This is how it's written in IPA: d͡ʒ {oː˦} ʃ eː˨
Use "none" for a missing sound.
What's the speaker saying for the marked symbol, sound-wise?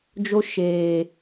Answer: o˦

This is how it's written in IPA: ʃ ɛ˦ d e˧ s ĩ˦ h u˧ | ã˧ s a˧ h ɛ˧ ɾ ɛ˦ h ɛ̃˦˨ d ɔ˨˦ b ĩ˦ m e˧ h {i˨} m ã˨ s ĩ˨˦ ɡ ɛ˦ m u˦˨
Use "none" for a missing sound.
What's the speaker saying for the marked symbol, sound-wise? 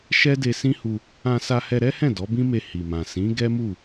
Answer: i˨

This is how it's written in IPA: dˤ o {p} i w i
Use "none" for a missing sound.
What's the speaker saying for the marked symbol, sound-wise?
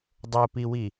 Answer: p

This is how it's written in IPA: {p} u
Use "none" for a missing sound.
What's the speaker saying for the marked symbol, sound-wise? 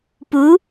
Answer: p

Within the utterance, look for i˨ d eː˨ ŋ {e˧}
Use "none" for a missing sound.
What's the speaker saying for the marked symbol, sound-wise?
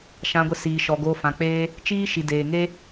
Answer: e˦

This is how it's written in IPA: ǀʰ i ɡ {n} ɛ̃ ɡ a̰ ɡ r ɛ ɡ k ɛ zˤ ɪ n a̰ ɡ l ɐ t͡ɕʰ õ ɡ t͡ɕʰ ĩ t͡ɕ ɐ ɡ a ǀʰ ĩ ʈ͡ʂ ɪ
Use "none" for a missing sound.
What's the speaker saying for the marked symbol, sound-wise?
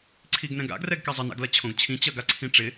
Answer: n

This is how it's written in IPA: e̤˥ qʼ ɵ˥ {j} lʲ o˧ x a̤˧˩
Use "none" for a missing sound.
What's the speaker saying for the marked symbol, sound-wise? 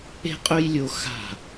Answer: j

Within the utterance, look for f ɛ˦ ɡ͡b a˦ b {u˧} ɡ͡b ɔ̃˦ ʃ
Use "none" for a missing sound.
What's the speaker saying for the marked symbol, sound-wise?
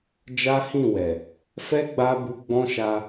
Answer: u˧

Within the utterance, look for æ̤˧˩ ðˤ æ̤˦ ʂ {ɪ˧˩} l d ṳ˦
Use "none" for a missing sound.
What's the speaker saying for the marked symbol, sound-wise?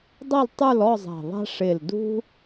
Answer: ɪ˧˩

